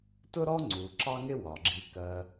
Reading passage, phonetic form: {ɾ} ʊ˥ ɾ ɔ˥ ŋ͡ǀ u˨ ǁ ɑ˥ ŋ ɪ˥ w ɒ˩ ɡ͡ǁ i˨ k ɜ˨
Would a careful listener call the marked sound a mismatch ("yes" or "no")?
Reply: yes